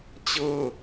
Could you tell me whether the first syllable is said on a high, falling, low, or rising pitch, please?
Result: falling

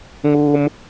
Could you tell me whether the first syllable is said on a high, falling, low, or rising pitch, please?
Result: high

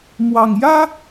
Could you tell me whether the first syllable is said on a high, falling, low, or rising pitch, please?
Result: low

